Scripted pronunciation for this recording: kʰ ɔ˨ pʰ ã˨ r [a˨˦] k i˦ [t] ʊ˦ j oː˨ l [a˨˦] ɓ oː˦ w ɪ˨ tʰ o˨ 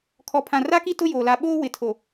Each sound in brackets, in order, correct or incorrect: incorrect: a˦, correct, correct

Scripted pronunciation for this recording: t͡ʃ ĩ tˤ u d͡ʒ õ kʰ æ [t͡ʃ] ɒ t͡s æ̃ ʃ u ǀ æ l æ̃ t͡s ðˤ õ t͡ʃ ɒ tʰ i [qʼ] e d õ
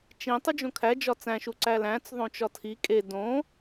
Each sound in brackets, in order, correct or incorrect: incorrect: d͡ʒ, incorrect: kʼ

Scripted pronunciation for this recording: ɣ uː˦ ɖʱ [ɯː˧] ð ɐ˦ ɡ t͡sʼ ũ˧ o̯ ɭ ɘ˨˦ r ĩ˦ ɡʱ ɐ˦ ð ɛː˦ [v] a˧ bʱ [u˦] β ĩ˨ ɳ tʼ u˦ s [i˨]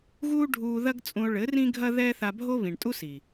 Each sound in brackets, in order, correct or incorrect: incorrect: uː˧, incorrect: θ, incorrect: o˦, correct

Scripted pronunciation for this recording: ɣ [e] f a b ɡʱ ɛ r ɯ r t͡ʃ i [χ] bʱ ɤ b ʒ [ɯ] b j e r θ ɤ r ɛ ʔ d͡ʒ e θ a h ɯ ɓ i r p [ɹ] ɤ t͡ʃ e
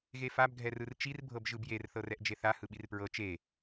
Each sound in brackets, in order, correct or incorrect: correct, incorrect: r, correct, correct

